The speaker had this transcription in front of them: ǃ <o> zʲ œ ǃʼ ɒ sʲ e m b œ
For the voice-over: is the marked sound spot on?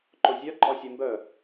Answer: yes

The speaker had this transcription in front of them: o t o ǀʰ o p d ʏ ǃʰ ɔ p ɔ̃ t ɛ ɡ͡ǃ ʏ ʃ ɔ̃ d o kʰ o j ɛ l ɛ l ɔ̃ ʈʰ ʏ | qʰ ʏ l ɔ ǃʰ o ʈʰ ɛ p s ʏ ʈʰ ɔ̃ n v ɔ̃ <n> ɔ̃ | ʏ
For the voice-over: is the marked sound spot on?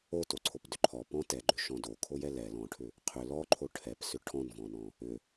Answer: yes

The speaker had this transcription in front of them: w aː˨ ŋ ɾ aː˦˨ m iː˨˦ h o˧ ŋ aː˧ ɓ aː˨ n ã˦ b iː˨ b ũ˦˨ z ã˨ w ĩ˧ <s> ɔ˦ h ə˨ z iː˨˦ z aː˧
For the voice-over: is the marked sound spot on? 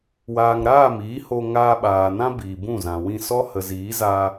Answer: yes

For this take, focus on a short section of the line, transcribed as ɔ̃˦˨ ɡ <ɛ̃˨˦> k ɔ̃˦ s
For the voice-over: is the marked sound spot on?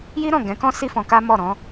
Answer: yes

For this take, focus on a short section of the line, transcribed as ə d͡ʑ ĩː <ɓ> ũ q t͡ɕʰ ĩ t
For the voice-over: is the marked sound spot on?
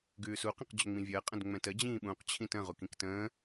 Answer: yes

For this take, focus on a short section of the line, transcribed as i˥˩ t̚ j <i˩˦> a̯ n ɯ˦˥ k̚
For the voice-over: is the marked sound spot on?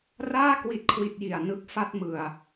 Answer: no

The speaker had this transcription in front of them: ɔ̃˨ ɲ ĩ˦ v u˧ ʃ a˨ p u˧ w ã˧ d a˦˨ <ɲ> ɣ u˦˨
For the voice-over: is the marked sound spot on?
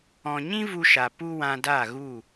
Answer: no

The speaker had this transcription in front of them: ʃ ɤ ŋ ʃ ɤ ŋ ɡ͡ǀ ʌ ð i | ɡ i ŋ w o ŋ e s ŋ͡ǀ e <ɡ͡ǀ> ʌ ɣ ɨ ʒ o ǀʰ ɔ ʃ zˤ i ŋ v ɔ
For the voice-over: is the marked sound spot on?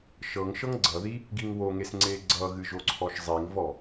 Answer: yes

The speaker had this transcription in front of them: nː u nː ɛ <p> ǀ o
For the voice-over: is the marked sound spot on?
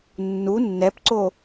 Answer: yes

